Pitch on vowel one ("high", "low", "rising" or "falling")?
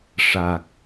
low